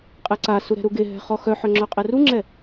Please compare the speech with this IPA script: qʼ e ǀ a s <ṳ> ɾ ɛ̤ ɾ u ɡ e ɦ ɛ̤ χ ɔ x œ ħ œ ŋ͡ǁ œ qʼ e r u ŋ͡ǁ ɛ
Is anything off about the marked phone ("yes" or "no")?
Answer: yes